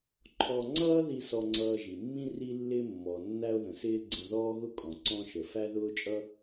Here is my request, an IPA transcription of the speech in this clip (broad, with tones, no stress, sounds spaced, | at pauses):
ǃʰ ɔ˧ ŋ͡ǀ ʌː˥ ð i˧ s ɔ˧ ŋ͡ǀ ʌː˧ ʒ i˩ mː ĩ˥ r i˧ lː ɪ˧ mː ɔ˩ nː æ˥ o̯ ð ə̃˩ s ɪː˥ ɡ͡ǀ ə̃˧ ð ɔː˥ ɣ ʊ˥ kʼ ɔ̃˩ ǀ ɔ̃˥ ʃ ə˩ f æ˥ ð ʊː˥ t͡ʃʼ ʌ˥